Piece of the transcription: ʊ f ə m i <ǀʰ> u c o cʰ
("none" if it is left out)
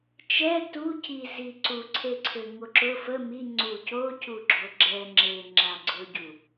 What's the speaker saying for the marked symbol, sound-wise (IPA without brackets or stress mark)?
ŋ͡ǀ